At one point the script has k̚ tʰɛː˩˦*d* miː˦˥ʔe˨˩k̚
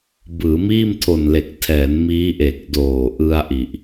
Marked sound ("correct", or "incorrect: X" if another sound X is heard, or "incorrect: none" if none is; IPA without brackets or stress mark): incorrect: n